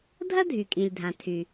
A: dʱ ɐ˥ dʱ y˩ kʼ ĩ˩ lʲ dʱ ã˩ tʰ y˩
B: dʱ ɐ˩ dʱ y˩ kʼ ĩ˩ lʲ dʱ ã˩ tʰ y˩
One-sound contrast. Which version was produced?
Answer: A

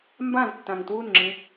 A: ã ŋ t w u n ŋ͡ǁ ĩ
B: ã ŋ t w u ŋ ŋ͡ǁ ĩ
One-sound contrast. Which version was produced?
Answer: A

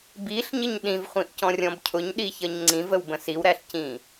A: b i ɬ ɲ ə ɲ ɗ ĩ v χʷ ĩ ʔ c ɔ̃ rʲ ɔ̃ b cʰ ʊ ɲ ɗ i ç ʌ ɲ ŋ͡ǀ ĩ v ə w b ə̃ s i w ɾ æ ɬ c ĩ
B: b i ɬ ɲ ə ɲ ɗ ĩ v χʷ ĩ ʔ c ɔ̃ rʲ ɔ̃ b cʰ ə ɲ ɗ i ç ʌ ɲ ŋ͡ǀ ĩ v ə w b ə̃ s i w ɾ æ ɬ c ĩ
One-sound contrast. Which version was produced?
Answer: A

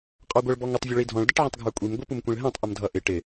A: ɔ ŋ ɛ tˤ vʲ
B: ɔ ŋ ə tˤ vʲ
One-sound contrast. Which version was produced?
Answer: B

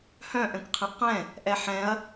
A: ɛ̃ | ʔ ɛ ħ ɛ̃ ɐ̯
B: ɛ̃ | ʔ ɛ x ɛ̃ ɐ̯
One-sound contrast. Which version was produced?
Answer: A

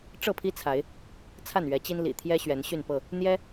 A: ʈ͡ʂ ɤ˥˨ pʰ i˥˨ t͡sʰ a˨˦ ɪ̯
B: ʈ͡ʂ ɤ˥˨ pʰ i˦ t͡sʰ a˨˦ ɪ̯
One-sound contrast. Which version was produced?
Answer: B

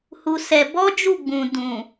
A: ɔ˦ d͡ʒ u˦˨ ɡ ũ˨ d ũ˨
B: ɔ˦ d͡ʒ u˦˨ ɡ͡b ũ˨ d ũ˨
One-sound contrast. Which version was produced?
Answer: B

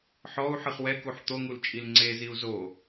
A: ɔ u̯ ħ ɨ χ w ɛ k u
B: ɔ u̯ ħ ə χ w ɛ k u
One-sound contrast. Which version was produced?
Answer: A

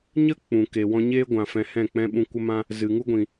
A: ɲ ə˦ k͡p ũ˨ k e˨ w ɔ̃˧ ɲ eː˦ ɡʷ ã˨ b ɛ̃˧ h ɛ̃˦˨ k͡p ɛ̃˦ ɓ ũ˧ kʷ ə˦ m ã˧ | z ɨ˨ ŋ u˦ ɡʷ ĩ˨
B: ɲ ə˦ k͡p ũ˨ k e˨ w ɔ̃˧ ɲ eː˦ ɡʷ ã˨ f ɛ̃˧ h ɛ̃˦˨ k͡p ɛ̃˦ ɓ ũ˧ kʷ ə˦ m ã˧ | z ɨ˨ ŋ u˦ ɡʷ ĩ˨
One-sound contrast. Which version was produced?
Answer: B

